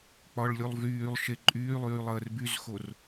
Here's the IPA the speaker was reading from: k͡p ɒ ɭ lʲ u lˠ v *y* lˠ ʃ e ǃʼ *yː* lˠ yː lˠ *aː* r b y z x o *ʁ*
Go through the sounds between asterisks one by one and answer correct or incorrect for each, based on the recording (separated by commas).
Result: incorrect, correct, incorrect, incorrect